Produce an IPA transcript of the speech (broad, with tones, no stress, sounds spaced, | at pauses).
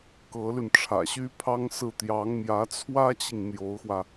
k ɤ˧˥ l y˧ n ʈ͡ʂʰ ä̰˨˩ ɕ y˥ pʰ ɑ˥ ŋ s ɹ̩˥˩ t̪ j ɑ˧˥ ŋ m j ä˧˥ t͡sʰ w ä˥ t͡ɕ i˨ ŋ n̪ j o˧˥ ʊ̯ x w ä˧